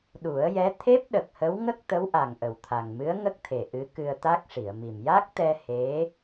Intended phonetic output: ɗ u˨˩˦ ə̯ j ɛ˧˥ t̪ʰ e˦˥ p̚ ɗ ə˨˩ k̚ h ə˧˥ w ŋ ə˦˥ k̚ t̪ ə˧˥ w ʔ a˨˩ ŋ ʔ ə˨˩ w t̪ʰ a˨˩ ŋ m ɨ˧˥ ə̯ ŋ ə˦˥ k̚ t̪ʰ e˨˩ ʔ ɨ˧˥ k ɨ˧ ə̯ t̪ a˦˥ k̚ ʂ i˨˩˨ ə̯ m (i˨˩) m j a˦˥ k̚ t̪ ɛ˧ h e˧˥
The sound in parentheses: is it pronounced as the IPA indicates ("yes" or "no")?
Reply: yes